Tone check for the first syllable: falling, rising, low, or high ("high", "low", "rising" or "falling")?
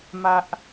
high